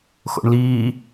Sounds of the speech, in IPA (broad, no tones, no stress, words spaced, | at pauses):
xo̰ɳliː